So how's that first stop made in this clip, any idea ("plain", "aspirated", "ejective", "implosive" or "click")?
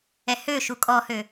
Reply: ejective